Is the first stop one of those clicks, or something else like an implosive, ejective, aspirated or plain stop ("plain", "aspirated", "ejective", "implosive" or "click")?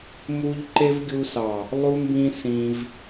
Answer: click